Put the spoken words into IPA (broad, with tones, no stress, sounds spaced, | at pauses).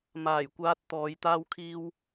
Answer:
m aː˨˩ j kʷ aː˧ t̚ t̪ ɔː˨˧ j t̪ aː˥ w kʰ iː˥ w